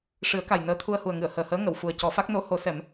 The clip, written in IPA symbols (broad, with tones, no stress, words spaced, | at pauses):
ʂɨ˨˩˦ə̯ka˨˩j nəː˧˥t̪ʰu˧ə̯hu˨˩ə̯ŋɨ˨˩˨ə̯ həː˨˩həː˧˥ ŋə˨˩˨w fu˨˩ə̯ cɔ˨˩˦fa˦˥k̚no˧˥ ho˧˥sɛ˨˩˦m